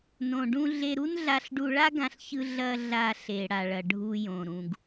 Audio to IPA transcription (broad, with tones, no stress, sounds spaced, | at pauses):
n õ˩ ɖ ũ˧ ɮ e˧ ɾ u˥ n ɮ a˧ ɬ ɖ u˧ ɭ a˥ ɡ ã˧ ɬ ç ɯ˧ ɮ ɐ˧ ɮ a˧ ɬ e˩ ɽ a˩ ɭ ɐ˩ ɖʱ u˧ j õ˩ ɾ ũ˩ ɡ